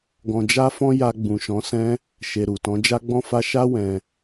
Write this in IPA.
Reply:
ɡ ɔ̃˨ d͡ʒ a˧ f ɔ̃˧ j a˧ ɡ͡b ũ˨ ʃ ɔ̃˨˦ s ɛ̃˦ | ʃ e˨ ɾ u˨ t ɔ̃˨˦ d͡ʒ a˦ ɡ͡b ɔ̃˧ f a˧ ʃ a˦ w ɛ̃˧

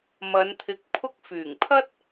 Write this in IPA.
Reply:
m ɐ˨˧ n t̪ʰ ɪ˨˥ k̚ pʰ ʊ˧ k̚ f yː˨˩ ŋ pʰ ɐ˥ t̚

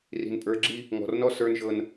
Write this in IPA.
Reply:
r i̤˨ n pʼ ə˞˨˦ ɡ͡ǁ i˦ | ŋ ɔ̤˨ r n ɔ˦ s ə˞˦ n ʒ ɤ˦ n

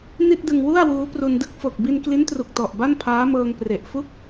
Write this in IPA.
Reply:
n i˥˩ t̚ d ɯ˧ ŋ w u˥˩ a̯ w uː˦˥ p r u˧ n d ɯ˥˩ k̚ f o˨˩ k̚ b i˧ n k l i˦˥ n t r u˨˩ k̚ t ɔ˨˩ ʔ b a˥˩ n pʰ aː˦˥ m ɤː˧ ŋ p r e˨˩ ʔ f u˥˩ k̚

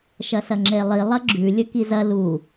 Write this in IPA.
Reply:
ʃ ɐ s ɐ ŋ͡ǁ e lˠ i lˠ ɐ ɡ͡ǁ ʉ lʲ ɵ k i z ɐ l u

